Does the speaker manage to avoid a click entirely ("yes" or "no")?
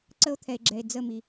no